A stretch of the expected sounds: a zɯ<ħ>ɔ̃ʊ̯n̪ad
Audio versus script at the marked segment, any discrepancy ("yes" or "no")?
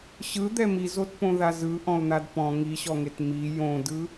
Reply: yes